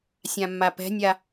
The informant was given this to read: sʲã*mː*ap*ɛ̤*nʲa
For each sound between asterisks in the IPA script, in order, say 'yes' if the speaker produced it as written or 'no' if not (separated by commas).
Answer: yes, yes